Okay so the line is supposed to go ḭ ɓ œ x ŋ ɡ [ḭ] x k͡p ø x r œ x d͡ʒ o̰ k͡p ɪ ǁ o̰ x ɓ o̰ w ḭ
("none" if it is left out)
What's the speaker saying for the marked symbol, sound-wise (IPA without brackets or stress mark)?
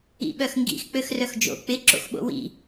ḭ